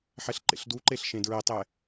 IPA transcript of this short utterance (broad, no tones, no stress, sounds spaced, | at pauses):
ħ ɛ ɬ ǃ ḛ ɬ d u ǃ e ɬ ʃ ẽ d ɹ ɛ tˤ ɛ